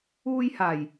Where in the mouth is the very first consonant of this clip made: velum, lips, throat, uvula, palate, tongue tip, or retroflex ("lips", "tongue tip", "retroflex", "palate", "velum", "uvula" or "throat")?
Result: palate